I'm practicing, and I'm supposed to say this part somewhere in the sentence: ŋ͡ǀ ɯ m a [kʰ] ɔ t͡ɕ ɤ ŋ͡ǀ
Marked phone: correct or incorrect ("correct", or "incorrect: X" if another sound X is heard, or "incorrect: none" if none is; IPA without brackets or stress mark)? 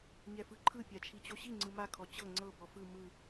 correct